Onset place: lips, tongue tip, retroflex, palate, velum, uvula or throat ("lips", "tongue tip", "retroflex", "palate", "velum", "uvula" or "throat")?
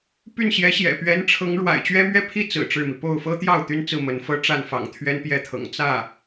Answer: lips